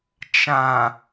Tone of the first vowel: low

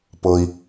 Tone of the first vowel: high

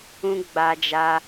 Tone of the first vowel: high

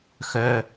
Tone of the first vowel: high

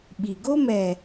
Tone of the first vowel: low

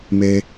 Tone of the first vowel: high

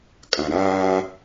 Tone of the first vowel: low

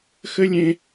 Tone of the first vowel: high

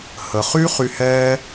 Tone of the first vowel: low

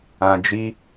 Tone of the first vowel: low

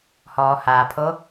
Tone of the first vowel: low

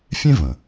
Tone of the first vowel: high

